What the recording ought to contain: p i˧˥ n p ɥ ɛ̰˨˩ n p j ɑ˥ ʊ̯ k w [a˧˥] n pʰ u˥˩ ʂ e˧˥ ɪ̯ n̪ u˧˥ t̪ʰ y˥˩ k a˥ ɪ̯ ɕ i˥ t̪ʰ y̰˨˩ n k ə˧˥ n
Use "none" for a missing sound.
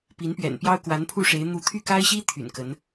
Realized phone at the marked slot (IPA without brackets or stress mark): a˧˥